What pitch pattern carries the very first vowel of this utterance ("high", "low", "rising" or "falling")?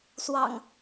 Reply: low